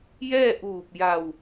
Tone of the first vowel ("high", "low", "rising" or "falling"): falling